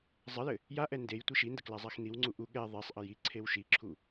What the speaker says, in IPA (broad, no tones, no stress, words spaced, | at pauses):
zˤɘjɘ | jaʔɛ ndej tʷiʃində klazˤaxniwŋ͡ǀu ʔu ɠɛ ðˤisˤʔə ji ǀʰewʃiǁʰu